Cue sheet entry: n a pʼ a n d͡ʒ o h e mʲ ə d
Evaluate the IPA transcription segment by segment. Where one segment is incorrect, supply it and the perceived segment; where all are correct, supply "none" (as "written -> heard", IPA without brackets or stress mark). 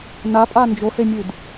ə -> ʉ